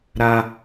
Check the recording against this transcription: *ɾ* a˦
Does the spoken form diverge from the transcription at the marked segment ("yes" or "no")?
no